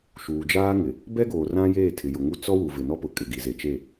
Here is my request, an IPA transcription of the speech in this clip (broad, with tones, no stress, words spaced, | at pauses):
ʃuː˨d͡ʒaː˦ŋɪ˨ | bɛ˦ɡoː˨ rã˦jeː˦˨ tʰɪ˨jʊ˨ŋu˦˨ t͡sɔ˦ wu˨vɪ˨nɔ˦pʊ˨ kʼɪ˨ɡi˨ ze˨t͡ʃe˦˨